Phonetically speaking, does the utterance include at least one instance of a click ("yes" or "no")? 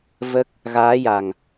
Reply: no